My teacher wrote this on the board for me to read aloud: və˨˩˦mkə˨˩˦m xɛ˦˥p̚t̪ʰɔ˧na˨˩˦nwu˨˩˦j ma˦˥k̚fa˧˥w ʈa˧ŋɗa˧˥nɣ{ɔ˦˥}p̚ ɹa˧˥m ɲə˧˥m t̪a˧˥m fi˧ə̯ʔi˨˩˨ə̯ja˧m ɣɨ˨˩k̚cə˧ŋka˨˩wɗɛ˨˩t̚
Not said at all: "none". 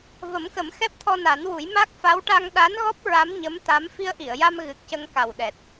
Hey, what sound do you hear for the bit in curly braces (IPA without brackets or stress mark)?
ɔ˦˥